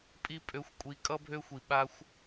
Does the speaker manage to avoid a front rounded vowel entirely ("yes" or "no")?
no